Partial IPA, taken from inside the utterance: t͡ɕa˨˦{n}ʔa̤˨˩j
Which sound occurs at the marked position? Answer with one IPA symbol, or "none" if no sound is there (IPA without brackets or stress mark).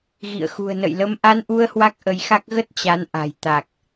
n